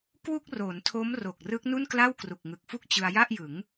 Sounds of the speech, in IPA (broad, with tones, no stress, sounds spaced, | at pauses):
k w u˥˩ k̚ r o˩˦ n tʰ o˦˥ m r o˨˩ k̚ r ɯ˦˥ k̚ n u˥˩ n k l a˥˩ w k r u˨˩ k̚ ŋ ɯ˨˩ k̚ f u˥˩ k̚ t͡ɕ ɯ˧ a̯ j a˥˩ ʔ j ɯ˩˦ ŋ